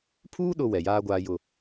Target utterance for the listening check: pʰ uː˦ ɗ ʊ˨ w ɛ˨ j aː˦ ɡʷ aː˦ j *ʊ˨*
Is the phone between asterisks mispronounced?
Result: yes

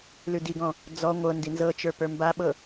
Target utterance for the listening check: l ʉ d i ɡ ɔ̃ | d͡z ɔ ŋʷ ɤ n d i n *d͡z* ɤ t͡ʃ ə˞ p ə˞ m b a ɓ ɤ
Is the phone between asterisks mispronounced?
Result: yes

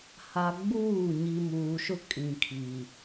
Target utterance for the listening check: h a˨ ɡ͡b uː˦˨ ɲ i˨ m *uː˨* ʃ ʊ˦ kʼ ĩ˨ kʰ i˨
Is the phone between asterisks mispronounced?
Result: no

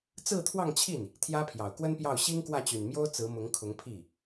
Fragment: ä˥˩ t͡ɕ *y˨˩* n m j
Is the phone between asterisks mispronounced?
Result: no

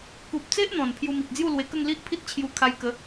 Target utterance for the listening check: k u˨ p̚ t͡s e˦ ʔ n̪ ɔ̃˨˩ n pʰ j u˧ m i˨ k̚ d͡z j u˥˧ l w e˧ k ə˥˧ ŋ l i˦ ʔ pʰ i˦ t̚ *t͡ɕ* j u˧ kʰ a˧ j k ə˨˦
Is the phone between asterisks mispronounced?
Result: yes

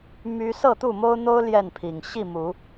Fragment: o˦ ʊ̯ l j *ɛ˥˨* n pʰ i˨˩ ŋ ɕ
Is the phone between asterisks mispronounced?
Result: no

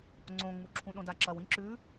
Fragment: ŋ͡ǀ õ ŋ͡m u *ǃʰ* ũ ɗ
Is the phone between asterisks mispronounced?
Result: yes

